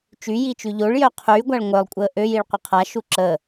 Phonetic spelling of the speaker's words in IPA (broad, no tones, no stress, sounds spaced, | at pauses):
t͡ʃ y j i t͡ʃ y ʎ o ɭ j œ qʰ yː ɡʷ a ɭ ŋʷ œ lˠ kʷʼ əː ʔ ø j i ɭ qʷ ə qʰ a ʃ u ǁ əː